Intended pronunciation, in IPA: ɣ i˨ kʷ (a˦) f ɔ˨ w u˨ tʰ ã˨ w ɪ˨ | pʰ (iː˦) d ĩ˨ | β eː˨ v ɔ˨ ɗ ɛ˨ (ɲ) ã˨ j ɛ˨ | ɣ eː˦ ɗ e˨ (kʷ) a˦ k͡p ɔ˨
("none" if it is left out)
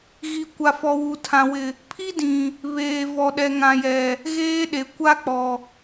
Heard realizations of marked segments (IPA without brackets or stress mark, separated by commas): a˨, i˦, ŋ, kʷ